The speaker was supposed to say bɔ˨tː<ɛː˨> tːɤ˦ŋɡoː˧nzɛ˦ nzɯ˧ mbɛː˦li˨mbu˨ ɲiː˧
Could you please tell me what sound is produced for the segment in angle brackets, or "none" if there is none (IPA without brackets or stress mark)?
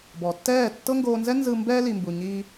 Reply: ɛː˦˨